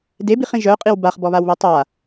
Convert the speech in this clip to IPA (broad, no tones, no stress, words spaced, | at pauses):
debiχĩ ʒœqʼiw baχbɔβawβe tˤa